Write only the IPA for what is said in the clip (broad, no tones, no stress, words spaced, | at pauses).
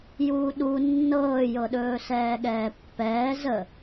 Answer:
juːɗu nːɤːjɤɗɵː sɛːɠɛːpːɛː zə